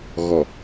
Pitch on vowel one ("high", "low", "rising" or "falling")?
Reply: low